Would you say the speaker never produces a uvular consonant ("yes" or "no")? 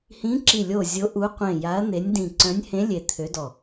no